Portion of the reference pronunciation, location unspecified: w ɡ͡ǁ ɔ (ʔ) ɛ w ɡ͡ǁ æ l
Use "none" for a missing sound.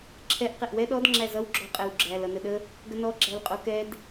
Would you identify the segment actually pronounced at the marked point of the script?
qʼ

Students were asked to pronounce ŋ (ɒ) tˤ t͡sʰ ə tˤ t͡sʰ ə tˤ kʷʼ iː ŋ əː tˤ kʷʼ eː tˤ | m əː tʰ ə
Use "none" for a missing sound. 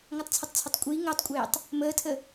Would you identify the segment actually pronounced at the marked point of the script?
ɒ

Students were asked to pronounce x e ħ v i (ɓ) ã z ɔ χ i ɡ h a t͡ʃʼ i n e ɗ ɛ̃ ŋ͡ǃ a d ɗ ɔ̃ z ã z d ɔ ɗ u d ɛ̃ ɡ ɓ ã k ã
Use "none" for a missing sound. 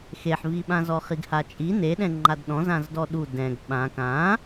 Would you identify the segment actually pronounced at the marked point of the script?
ɓ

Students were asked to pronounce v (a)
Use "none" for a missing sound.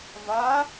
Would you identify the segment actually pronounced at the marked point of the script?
a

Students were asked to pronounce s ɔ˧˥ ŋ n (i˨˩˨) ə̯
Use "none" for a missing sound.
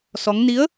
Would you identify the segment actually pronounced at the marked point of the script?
i˧˥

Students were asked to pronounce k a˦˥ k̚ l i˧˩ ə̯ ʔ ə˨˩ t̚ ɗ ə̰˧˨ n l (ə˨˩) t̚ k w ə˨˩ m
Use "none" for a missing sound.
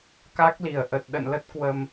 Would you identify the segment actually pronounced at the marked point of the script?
ə˦˥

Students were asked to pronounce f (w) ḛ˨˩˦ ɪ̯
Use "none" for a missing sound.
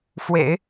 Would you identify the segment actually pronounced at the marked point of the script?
w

